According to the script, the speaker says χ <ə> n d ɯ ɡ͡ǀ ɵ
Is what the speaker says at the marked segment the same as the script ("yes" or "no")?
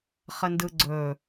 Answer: yes